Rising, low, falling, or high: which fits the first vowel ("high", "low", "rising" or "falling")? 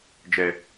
low